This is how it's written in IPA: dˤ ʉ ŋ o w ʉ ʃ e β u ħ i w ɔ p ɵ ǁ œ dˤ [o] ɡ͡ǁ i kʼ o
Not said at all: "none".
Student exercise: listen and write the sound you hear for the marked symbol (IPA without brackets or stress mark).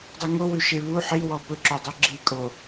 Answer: o